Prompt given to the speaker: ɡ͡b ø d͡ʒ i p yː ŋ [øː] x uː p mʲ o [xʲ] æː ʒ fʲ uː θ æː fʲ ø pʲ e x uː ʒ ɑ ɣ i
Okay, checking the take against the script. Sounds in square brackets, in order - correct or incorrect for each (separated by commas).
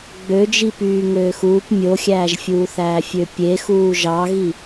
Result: correct, correct